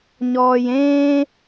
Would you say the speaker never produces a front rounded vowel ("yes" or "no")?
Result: yes